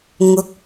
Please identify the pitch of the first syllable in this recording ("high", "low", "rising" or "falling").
rising